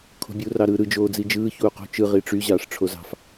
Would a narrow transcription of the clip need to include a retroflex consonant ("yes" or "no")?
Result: yes